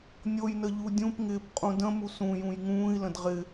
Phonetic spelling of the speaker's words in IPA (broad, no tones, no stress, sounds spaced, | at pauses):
nʲ o j n ə ʎ u dʲ ũ p ŋ ɪː p qʼ ũ d ə̃ m u s ũ j ũ j ŋ ũː i̯ l ə̃ d ʁ ɪ